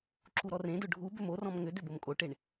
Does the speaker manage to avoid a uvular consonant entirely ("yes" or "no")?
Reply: yes